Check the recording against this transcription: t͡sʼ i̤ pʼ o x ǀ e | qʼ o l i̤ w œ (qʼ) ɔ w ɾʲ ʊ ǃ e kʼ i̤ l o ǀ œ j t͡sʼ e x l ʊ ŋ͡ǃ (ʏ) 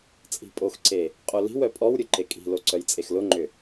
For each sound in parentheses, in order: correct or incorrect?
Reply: incorrect: pʼ, correct

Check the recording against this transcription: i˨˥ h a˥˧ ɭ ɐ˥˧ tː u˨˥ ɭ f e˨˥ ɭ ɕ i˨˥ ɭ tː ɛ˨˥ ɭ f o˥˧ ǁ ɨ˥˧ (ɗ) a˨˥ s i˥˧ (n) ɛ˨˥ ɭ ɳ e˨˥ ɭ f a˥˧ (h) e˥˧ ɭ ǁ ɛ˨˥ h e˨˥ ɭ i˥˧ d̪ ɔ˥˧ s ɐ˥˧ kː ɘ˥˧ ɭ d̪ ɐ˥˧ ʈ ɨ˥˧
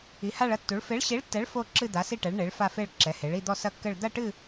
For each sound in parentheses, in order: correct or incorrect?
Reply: incorrect: d̪, incorrect: ʈ, incorrect: f

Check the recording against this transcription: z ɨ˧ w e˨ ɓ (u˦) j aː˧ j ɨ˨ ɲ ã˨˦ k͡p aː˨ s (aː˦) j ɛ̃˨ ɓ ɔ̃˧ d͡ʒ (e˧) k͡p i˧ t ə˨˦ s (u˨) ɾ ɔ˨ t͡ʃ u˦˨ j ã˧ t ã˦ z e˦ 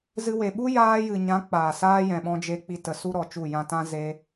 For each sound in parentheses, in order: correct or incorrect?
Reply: correct, correct, correct, incorrect: u˦

